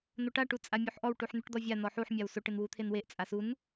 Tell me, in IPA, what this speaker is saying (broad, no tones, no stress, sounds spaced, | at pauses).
n̪ o ʈ a ʈ u t͡sʼ a mʲ u ħ ʔ ɔ w ʈ u ħ n̪ u ʈ d̪ ɔ vʲ a n ɔ ħ u ħ mʲ a w s o ʈ ɪ n w u t̪ʰ e n w e ʔ t͡sʼ a s u n